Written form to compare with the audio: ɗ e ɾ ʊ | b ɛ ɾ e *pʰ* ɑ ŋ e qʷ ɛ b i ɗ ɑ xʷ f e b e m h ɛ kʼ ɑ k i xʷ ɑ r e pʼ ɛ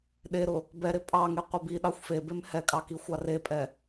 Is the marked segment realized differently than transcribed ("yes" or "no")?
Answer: yes